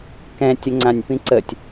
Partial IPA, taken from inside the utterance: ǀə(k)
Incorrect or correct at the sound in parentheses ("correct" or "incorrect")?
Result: incorrect